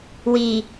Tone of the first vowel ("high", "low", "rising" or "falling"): low